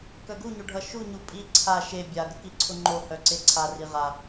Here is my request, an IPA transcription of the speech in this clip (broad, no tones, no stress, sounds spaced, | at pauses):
k œ ɡ u ɲ o ɖʱ ʌ ʃ u ɲ u pʼ i ǀʰ a ʃ e bʲ a ɡ ə k i ǀʰ ʊ ŋ͡ǃ o h œ ǀ e ǀʰ a r i ʁ a